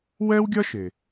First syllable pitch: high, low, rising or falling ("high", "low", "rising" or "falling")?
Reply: high